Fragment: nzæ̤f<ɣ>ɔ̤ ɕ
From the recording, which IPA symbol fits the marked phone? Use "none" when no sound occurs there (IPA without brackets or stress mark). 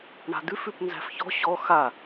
ç